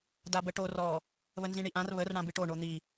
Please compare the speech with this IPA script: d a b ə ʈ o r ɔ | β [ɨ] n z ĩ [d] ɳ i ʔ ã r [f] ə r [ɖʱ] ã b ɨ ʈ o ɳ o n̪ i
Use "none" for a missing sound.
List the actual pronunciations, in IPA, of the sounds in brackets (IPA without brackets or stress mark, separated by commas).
ə, none, β, ɽ